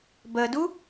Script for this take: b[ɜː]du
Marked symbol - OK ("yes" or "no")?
no